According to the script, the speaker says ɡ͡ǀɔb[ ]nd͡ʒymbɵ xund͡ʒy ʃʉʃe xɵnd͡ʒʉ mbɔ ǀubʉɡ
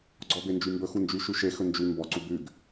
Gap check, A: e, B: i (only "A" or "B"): A